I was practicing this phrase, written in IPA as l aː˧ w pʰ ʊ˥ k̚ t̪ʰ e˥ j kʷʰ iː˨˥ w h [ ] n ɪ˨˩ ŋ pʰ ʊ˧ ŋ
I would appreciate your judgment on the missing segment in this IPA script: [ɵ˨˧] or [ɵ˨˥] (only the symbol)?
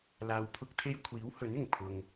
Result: ɵ˨˥